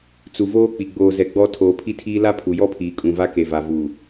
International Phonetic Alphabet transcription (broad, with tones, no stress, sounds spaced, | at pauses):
t͡s u˨ v oː˦ k͡p i˨ ɡ͡b oː˨ z ɛ˨ ɡ͡b ɔ˦ tʰ oː˨ pʰ i˦ tʰ iː˦ l a˦ pʰ u˨ j ɔ˦ pʰ iː˨ kʼ ũ˨ v a˦ k e˨ v a˨ v u˨